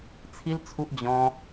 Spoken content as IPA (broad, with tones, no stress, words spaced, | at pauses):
t͡sʰi˦lt͡sʰu˦ʔ d͡ʑɔ̃˦